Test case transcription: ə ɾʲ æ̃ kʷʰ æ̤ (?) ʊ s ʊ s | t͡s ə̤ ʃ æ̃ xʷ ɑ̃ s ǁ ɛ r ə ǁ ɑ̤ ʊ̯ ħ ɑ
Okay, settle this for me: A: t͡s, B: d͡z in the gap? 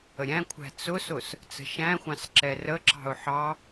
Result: A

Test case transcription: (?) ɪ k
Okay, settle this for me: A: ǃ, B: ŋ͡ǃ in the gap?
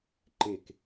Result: A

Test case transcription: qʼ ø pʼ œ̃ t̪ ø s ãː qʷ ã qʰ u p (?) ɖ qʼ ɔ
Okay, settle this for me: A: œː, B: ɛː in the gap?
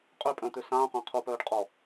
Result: A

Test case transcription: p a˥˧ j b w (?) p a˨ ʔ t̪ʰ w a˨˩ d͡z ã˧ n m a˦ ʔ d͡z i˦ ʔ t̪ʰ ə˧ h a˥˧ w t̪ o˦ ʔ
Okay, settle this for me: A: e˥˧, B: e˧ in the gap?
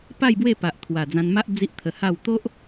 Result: A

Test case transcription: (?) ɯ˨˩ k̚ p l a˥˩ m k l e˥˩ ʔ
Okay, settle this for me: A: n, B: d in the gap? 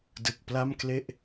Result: B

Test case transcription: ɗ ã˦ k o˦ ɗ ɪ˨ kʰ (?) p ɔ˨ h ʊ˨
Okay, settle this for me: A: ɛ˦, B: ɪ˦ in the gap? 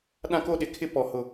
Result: B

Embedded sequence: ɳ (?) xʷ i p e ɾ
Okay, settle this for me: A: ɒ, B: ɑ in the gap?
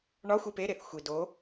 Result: A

